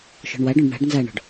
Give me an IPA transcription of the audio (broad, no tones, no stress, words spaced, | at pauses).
ʃɔ̤ɳwaɖɔ̃ɖ ɳa̤ɖ nzaɳɔ̤ɖ